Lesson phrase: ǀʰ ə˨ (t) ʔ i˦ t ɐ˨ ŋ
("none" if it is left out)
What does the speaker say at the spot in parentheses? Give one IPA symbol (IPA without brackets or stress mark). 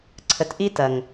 t